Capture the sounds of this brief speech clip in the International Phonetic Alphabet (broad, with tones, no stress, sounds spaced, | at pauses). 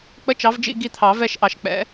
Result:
k͡p ə˧˥˧ t͡ʃ ɑ˨˦ v d͡ʒ ḭ˦˨ ɡ i˦˨ t̪ʰ ɑ˨˩˦ v ɛ˦˨ ʃ ʔ ɑ˨ ʃ k͡p ɛ̰˨˦